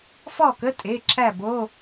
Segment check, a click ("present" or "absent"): present